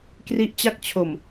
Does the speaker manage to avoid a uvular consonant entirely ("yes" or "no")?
yes